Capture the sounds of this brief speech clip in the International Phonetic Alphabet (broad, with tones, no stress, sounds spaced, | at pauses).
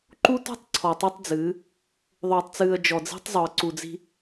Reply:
ǃ u˦ t ɔ̤˦ tˤ ǀʰ ɔ˨ tˤ ɨ˦ tˤ d͡z ɨː˨˦ | ðˤ oː˨ tˤ t͡s ɨː˨ ə̯ d͡ʒ ɔ˨ d͡z i̤˦ tˤ zˤ o˨ ə̯ ǀ u˨ d͡z i̤˦